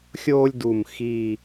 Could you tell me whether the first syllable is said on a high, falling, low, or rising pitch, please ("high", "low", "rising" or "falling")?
high